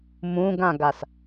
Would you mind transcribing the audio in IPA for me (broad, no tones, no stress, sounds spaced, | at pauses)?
m ũ ɡ ã ɡ a s